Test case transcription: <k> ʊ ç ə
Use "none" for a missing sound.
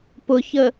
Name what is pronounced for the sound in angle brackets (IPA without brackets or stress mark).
p